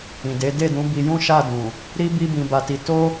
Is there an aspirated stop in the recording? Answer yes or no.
no